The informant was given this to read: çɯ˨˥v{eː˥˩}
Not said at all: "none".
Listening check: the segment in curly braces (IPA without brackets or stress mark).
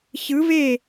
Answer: e˥˩